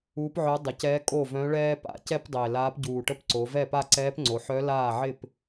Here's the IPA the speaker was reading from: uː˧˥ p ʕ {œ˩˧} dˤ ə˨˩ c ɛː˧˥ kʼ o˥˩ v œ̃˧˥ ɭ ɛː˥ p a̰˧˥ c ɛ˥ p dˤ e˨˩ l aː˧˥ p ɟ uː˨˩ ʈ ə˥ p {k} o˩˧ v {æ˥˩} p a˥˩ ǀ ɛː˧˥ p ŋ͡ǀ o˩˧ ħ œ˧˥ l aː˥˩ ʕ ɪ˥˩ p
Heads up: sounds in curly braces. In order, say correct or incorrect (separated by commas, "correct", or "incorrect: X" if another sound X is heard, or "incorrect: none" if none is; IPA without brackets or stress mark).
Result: incorrect: œ˧˥, incorrect: ǀ, incorrect: ɛ˥˩